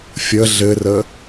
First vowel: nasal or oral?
oral